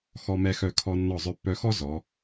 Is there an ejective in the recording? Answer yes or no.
no